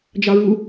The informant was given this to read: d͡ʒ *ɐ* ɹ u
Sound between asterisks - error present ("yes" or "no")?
yes